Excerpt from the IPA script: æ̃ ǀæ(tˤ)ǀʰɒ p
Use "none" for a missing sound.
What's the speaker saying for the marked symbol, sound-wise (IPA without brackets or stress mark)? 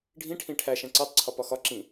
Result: tˤ